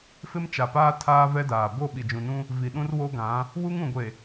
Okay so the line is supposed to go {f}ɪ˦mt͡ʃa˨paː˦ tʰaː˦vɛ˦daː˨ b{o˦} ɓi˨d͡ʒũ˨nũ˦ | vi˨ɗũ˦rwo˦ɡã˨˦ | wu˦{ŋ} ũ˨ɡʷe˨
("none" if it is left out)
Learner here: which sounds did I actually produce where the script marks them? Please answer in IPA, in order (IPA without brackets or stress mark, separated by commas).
f, o˦˨, ŋ